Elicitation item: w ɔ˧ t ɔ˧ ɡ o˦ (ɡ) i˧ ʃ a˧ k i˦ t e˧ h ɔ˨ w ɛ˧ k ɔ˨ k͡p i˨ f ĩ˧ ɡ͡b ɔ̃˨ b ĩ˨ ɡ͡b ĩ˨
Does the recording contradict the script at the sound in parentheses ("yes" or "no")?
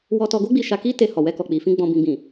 yes